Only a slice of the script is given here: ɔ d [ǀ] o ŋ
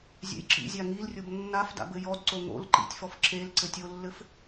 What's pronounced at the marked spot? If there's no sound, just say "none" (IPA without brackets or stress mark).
ǀ